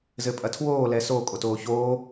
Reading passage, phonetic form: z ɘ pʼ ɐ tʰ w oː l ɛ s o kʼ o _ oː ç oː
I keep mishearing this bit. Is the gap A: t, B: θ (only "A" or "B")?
A